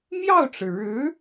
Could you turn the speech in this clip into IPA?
mjɑ˥˩ʊ̯ʈ͡ʂɻ̩˩ ɻɻ̩˧˥

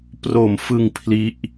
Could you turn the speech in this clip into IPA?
pro˨˩mfɯ˧ŋ pʰli˦˥ʔ

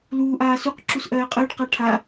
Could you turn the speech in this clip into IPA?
luːʔ aːsuq ǁusʔɜːqʼəːɖ qaʈʰa

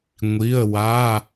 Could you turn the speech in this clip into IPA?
ŋʷi˩˧˩ə̯ wa˩˧˩

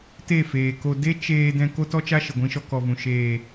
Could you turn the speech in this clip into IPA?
te˦˨feː˨ko˧ de˦t͡ʃeː˧ dɛ̃˧ ko˦tɔ˦t͡ʃa˦ ʃə˨ɡʷĩ˧ʃɔ˧ kɔ˨vũ˨ ʃeː˨

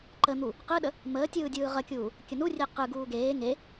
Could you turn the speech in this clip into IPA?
ǃən̪u | qɯɗə | məːtʲɯː dʲɯːʁəkʲuː | kʲənurʲe qɯɡuː ɡeː ŋe

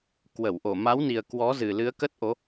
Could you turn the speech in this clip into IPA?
kwə˧˩wʔo˧˩ ma˨˦wni˨˩ə̯ kwɔ˨˦zɨ˨˩lɨ˨˦ə̯ kə˦˥t̚ ʔo˨˦

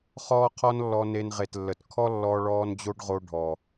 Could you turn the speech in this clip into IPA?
χɔː˦qʰɔ˦nlːɔ˧ ne˧nʁe˨tlːə˨t kʰɔ˦ lːɔ˧ɭɔː˧n d͡ʑo˦ɖʁo˧ ɖʱɔ˨

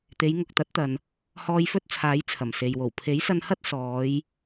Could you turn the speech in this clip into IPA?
t̪e˨˧jŋʊ˨k̚t̪ɐ˨˥t̚t̪ɐ˨n | hɔː˧jfɵ˥t̚t͡sʰaː˨˥j t͡sʰɐ˨˩mse˨jwo˨˩w pʰe˨˥jsɐ˧nhɐ˥t̚ sɔː˨˧j

